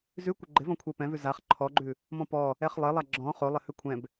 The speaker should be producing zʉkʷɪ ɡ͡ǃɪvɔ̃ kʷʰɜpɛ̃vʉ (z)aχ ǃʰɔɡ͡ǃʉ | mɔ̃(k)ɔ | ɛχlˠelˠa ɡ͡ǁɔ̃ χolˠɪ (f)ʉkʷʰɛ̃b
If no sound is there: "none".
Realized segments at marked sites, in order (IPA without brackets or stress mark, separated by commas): z, p, h